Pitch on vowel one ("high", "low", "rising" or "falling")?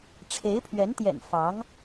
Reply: rising